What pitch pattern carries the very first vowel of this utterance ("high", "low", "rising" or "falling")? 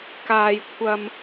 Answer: high